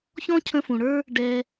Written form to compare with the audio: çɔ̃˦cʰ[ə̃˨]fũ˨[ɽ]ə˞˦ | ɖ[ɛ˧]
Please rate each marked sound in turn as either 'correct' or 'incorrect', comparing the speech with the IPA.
incorrect, correct, correct

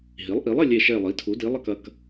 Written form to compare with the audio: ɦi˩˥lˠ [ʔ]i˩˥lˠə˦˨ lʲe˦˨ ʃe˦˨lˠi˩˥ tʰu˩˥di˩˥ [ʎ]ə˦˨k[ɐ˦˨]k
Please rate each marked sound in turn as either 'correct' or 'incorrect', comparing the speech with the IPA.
correct, incorrect, correct

